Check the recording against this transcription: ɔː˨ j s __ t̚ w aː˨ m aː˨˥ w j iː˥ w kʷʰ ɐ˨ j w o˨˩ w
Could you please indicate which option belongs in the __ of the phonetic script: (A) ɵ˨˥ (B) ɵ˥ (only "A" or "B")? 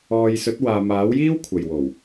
A